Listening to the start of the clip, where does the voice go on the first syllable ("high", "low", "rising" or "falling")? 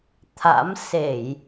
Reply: rising